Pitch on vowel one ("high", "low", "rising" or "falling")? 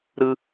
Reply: high